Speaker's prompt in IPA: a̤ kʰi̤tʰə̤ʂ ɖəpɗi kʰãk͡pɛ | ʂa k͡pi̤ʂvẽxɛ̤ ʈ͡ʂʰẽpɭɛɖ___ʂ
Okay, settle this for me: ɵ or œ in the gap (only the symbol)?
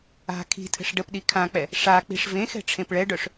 œ